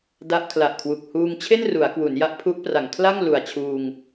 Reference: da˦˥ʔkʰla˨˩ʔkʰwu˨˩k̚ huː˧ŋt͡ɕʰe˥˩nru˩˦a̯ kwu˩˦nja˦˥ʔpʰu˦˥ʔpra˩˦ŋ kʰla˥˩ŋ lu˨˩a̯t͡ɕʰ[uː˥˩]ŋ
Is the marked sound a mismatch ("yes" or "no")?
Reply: yes